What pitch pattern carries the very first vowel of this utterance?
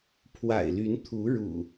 low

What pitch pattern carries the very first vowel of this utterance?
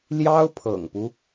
high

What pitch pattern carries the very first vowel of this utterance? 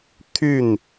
falling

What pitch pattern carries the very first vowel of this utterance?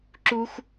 high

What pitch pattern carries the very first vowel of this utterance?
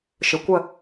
low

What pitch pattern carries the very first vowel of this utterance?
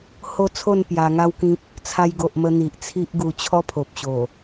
falling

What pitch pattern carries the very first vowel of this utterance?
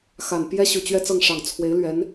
low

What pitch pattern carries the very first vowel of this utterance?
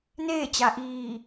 falling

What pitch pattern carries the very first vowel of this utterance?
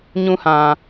high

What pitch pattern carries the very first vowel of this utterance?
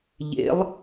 rising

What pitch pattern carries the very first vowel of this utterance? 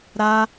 high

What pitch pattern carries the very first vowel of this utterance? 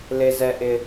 high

